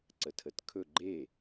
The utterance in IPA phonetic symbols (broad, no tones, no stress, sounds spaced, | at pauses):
ǀ ə tʰ ə t kʰ ɵ ɡ͡ǃ e